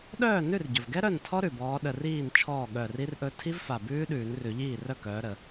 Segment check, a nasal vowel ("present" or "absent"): absent